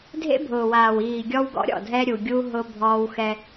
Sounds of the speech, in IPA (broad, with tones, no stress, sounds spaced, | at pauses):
dʱ ḛ˦ bʱ ʊː˨ w aː˨ w iː˨ ɡʲ ɔ˦ w ɡ ɔ̰˦ ɾʲ ɔ̰˦˨ dʱ ɛ˦ ɾʲ u˨ ɡʲ u˦ ɦ ʊ˦ bʱ ɔː˦ w x ɛ˦